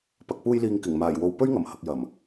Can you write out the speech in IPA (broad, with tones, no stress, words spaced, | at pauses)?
pɐ˨k̚puː˧jliː˨ŋ kɪ˨˩ŋmaː˨˩j wo˨w pɵ˥ɥŋɐ˨˩mhɐ˨k̚jɐ˨˩m